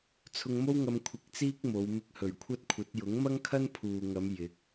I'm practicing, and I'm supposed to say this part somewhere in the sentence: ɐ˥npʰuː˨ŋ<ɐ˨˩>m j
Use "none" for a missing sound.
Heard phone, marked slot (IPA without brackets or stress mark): ɐ˨˧